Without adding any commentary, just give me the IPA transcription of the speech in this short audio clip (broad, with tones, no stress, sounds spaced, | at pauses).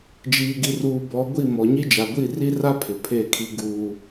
d͡ʒ iː˨ ɡ i˨ r uː˨ b ɔ˨˦ ɡʷ i˦˨ m ɔ˨ ɲ i˦ d͡ʒ a˨ ɡʷ i˦˨ r i˦ r a˦ pʰ ɪ˨ pʰ e˦˨ kʰ i˦ ɡ uː˦